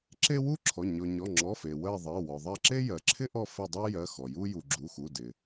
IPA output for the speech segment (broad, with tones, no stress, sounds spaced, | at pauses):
ǁ e˥ w u˥ ǁʰ ɔ˩˧˩ ɲ ɔ˩ ɲ ɔ˩˧˩ ŋ͡ǁ ɔ˩˧˩ f e˩ w ɜ˦˨ ðˤ ɜ˩˧˩ w ɔ˩ ðˤ ɜ˦˨ ǁ e˥ j ɜ˩ ǁʰ ɪ˥ ʔ ɔ˦˨ f ɪ˦˨ dˤ e˥ j ɜ˩˧˩ x ɔ˩ j u˥ j u˩ ɡ͡ǁ u˩˧˩ x u˩˧˩ d ɪ˩